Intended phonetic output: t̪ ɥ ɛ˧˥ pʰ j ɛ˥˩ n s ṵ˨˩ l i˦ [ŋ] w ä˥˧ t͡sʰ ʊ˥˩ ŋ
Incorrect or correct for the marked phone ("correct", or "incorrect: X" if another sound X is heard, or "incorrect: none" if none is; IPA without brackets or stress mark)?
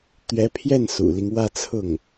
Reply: correct